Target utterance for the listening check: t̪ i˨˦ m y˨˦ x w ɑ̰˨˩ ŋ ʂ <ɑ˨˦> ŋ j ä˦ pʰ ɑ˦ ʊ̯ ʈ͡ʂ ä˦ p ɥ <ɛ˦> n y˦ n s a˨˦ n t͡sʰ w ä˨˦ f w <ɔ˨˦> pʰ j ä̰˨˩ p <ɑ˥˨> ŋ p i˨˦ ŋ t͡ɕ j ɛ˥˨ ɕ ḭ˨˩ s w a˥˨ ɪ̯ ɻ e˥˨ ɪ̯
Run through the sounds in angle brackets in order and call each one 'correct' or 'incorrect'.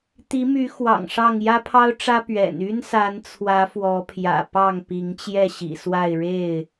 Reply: incorrect: ɑ˥˨, incorrect: ɛ̰˨˩, correct, correct

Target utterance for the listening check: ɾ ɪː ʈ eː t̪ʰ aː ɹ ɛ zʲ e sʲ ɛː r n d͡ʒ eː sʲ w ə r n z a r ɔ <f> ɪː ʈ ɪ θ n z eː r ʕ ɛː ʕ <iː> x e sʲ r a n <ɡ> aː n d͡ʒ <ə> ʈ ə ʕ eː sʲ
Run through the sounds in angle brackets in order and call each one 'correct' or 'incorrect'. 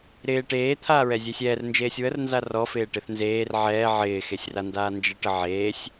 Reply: correct, incorrect: ɪː, incorrect: d, correct

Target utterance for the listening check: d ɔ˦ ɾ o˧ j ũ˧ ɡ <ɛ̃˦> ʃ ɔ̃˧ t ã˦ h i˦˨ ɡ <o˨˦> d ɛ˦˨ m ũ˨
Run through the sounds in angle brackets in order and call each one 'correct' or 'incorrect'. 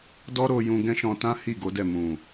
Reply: correct, correct

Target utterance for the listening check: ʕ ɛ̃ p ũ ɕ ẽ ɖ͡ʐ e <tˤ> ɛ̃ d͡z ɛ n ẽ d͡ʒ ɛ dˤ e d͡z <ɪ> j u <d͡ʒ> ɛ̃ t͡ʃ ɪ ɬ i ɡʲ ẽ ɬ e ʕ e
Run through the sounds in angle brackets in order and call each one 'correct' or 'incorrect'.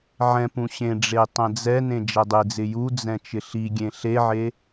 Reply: correct, correct, incorrect: d͡z

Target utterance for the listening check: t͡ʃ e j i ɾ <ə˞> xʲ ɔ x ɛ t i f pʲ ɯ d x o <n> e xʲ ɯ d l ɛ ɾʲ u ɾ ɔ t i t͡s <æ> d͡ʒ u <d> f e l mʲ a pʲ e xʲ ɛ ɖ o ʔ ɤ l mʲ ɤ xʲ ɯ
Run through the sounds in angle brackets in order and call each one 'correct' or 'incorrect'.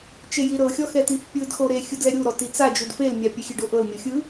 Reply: incorrect: ɤ, incorrect: ɾ, incorrect: a, correct

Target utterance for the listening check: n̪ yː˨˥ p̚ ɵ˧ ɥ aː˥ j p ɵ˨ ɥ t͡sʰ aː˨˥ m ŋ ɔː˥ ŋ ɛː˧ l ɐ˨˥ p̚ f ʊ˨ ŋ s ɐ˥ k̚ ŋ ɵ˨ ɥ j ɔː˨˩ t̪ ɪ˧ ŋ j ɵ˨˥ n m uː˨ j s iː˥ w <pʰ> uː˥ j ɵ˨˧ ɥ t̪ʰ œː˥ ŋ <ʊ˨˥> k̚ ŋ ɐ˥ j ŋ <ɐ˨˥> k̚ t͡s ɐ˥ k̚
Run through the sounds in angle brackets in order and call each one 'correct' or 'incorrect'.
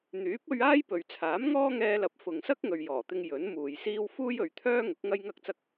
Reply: incorrect: f, correct, incorrect: ɐ˥

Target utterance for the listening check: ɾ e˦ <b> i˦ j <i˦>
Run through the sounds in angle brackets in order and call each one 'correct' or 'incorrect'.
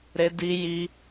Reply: incorrect: d, correct

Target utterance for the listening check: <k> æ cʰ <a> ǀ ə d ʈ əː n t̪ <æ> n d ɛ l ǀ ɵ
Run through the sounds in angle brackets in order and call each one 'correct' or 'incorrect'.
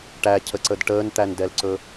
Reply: incorrect: ʈ, incorrect: ə, correct

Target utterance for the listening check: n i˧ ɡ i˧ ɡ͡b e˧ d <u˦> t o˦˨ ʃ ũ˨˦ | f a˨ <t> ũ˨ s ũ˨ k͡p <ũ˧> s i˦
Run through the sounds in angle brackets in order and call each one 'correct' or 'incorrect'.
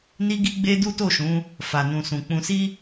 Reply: correct, incorrect: n, correct

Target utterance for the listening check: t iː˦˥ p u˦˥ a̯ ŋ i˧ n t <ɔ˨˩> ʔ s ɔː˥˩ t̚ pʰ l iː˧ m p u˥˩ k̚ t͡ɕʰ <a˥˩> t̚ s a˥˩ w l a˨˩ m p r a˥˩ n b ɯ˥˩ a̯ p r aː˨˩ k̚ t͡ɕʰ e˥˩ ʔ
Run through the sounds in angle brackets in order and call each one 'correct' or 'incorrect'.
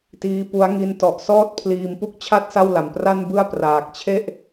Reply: correct, correct

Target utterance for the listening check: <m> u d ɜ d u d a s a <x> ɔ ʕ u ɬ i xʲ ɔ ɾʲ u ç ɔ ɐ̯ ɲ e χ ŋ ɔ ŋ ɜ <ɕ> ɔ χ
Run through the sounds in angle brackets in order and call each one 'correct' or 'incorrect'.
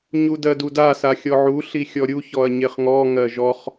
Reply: incorrect: ɲ, incorrect: xʲ, incorrect: ʒ

